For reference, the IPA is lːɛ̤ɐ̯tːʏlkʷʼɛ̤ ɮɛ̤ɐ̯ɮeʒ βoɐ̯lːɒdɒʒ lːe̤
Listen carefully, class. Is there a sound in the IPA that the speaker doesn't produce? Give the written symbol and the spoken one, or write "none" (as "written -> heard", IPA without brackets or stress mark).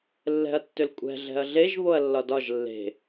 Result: none